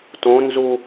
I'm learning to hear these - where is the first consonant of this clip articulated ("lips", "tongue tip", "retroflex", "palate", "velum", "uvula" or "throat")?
tongue tip